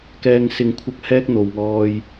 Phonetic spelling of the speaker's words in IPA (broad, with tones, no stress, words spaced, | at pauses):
kɛː˨ŋsɪ˨˧ŋkʷʰɐ˧k̚ hɛː˥k̚n̪o˨wŋɔː˧j